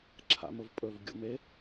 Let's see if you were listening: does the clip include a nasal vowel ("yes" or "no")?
no